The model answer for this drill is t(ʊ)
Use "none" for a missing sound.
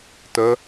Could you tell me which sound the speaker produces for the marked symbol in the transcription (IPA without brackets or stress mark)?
ə